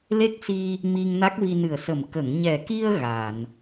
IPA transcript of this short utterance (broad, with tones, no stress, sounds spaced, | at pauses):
l e˦˥ k̚ s i˧ | m i˧ ŋ n a˦˥ k̚ v i˧ n ɨ˨˩ ə̯ s ə˨˩ m k ə˨˩˨ ŋ ɲ ɛ˨˩ k i˧ ə̯ ɣ a˨˩˨ n